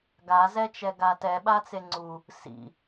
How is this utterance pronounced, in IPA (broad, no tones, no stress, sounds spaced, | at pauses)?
ɡ a z ɛ t͡ʃ ɛ ɡ a t ɛ ɓ a t͡s e ŋ͡ǀ u | s ḭ